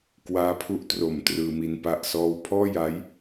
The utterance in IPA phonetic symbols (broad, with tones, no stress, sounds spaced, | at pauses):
k w aː˦˥ pʰ u˦˥ ʔ t r o˨˩ m t r ɯː˧ m i˧ n p a˥˩ ʔ s ɔː˥˩ w pʰ ɔː˥˩ j a˦˥ j